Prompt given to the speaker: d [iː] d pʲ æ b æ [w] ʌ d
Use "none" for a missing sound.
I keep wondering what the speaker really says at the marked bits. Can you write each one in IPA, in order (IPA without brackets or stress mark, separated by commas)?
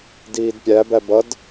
iː, b